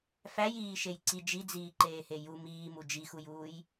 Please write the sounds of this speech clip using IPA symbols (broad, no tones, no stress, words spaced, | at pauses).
fæjiːʃej ǀi d͡ʒid͡ziːǃeːhe ju miːmu d͡ʒixujuːj